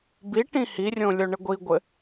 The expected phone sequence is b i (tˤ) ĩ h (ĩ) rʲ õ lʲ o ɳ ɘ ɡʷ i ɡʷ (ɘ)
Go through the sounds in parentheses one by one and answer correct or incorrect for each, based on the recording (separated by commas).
incorrect, incorrect, correct